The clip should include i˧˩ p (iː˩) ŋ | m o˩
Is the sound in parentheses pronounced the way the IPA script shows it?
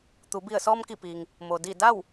yes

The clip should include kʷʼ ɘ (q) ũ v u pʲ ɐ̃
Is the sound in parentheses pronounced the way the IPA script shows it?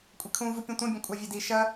no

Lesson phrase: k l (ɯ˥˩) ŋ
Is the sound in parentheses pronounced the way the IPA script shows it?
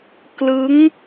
no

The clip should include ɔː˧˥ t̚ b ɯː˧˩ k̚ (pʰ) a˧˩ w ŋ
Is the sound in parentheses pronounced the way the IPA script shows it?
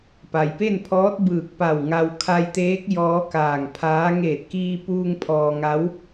no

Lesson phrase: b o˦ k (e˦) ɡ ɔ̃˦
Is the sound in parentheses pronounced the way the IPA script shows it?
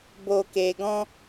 yes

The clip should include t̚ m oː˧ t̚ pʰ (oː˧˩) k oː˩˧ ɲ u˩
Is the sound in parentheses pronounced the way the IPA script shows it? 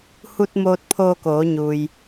no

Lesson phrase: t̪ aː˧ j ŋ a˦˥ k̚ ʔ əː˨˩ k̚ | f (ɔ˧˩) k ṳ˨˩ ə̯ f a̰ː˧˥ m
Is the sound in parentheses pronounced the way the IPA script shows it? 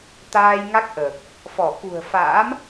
yes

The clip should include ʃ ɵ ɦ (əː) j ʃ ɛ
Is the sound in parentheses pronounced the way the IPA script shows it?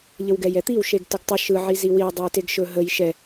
no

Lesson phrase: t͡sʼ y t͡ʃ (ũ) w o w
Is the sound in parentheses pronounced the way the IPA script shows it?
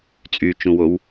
yes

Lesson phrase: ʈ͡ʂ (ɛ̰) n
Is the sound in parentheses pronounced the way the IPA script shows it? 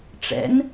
yes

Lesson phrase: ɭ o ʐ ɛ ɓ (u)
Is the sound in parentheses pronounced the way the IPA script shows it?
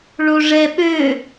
no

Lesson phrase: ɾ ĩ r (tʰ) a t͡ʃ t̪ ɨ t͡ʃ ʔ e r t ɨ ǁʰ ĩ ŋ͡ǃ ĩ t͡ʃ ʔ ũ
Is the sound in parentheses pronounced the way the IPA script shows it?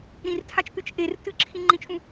yes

